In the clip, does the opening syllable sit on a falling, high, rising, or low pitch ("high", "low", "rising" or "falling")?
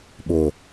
low